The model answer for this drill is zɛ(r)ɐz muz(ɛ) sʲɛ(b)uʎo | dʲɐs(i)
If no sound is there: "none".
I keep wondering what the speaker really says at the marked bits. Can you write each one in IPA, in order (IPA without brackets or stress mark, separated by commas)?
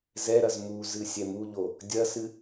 ɾ, ɨ, m, ɨ